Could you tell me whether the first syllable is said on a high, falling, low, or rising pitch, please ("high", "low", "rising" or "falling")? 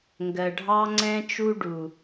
low